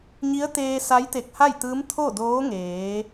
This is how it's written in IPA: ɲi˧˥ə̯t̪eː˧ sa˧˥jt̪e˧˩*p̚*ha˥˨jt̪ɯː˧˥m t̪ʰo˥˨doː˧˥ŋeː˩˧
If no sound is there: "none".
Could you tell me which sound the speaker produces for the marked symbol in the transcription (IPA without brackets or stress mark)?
k̚